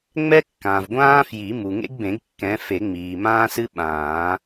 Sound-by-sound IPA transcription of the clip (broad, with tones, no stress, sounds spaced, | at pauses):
ŋ͡m ɛ˥ kː ãː˩ v ɡʷ ãː˥ f j i˨˩˦ m u˩ ŋ ḛ˥ ɡ b ẽ˨˩˦ ɡ kː ɛ̃˨˦ f e˨˩˦ ŋ͡m iː˩ m ãː˥ s ɨ˥ ɓ ãː˨˩˦